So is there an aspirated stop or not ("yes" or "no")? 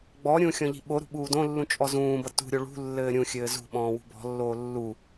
no